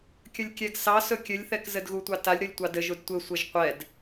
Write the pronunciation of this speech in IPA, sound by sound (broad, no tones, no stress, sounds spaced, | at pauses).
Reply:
kʲ ə lʲ kʲ ɛ ɡ s ɑ s ɵ kʲ ɘ lʲ θ ɛ k z ɘ d ɣ u tʷ ɑ t a lʲ ɾ ɵ lʲ tʷ ɑ d ɘ ʒ u d tʷ ɘ sʷ ɘ ʒ qʷ ɛ d